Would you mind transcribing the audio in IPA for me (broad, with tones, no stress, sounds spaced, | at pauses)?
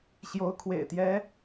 ɕ j o˧˥ ʊ̯ kʰ w ḛ˨˩ ɪ̯ t̪ j ɛ˧˥